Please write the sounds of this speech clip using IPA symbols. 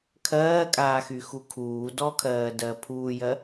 kʰ ɜː kʼ aː x y x u kʰ uː d ɔ kʰ ɜː d ɜ pʰ uː j ɜ

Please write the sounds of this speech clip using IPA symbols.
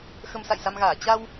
x ə˧ m s a̰˧˨ j s a˧ m ɣ aː˧˩ t͡ɕ a˧ w

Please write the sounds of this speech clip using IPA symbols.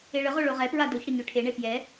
e ɭ ə ʁ o ɭ o ʁ ɛ p ɹ a d o ç ɽ ə ɲ ø ʈʰ e ɳ e p j ɛ

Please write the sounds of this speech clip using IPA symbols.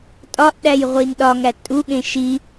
tʼ ɒ ʔ ɗ æ j ʁʷ i n ɗ ɒ ŋ æ tʼ u ɠ ẽ ʃ i

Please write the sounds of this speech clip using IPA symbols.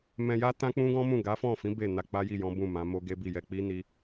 m ɛ̃˧ j a˦ t ã˦ k͡p ũ˦ ɡ ɔ̃˦ m ũ˦˨ ɡ a˨˦ f ɔ̃˦˨ f ĩ˨˦ b e˦˨ n a˧ k͡p a˦ j i˦˨ j ɔ̃˨˦ b ũ˦˨ m ã˨˦ m o˦ ɡ e˦ b i˦˨ j ɛ˧ k͡p i˦ n i˧

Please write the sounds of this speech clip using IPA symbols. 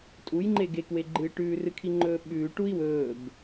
tʼ u j ŋ͡ǃ e ɡ e k w e ɡ͡ǃ ɨː ʈ ʉː r ɨ kʰ i ŋ͡ǃ ɵː ɓ ʉː ʈ u i̯ w ɵː b

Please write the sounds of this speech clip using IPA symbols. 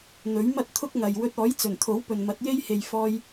n̪ ɵ˨˥ ɥ m ɐ˥ t̚ t̪ʰ ʊ˥ k̚ ŋ ɐ˨ j w ɵ˧ t̚ ɔː˨˥ j t͡s ɵ˨˩ n t̪ʰ o˨˥ w p ɵ˨ n m ɐ˨˥ t̚ j e˥ j h e˨ j f ɔː˧ j

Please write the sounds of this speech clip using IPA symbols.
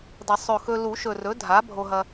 d ɐ˨˩˦ sˤ ɵ˨˩ x ɵ˧ l u˨˩˦ ʃ ɵ˨˩ r ɵ˩˥ dʱ a˩˥ bʱ o˧ ɦ ɐ˧

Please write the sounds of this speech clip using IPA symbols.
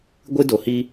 ɡʷ ɨ˦ d o˨ h i˦

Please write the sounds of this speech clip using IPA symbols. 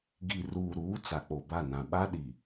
ɡ i˨ r uː˨ ɾ uː˨˦ t͡s a˨ k͡p o˨ b a˦˨ n ã˨ ɓ a˦ ɗ i˨

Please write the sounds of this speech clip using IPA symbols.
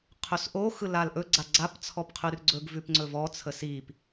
qʰ ɵ s ʔ o x ɯ l a l ʔ ɵ ɡ͡ǀ a ɡ͡ǀ a p t͡sʰ ɔ p qʰ ʉ r ɡ͡ǀ ɵ ɡ v ʉ p ŋ͡ǀ ɵ v ɔ t͡sʰ ə s i p

